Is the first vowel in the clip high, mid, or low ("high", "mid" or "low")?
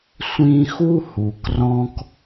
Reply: high